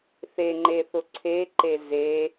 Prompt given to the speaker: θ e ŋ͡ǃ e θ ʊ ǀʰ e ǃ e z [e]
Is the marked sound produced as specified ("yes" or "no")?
yes